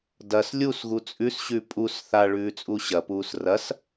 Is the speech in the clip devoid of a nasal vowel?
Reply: yes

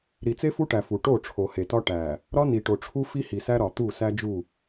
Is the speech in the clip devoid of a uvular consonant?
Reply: yes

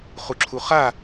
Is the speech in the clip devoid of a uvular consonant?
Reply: no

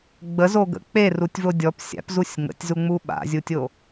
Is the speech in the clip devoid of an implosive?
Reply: no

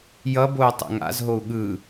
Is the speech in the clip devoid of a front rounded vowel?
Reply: yes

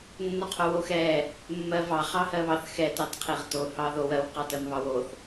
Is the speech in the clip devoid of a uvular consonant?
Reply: no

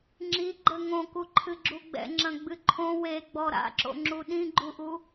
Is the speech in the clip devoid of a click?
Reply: no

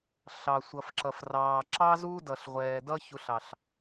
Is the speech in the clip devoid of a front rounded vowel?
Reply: yes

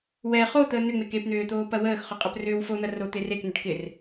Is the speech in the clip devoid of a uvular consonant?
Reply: no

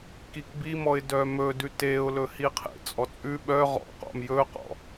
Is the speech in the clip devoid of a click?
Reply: yes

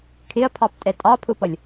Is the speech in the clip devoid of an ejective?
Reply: no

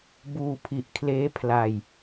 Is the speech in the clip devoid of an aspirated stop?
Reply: no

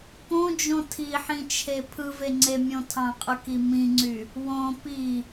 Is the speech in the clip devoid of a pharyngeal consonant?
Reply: no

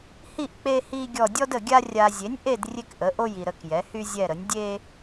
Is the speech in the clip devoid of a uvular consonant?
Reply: yes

